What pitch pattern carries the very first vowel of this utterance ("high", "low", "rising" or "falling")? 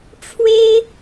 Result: high